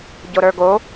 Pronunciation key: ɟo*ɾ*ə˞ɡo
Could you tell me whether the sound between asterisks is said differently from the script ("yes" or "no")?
no